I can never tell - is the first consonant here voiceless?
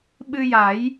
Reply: no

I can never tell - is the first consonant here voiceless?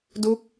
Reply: no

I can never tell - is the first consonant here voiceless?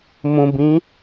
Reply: no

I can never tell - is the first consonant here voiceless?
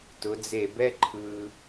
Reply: yes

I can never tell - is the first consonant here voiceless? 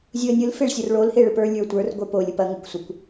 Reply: no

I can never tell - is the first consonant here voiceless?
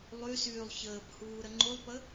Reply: no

